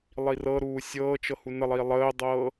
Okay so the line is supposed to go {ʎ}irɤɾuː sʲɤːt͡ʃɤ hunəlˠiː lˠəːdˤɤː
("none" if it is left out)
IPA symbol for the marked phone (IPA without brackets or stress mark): lˠ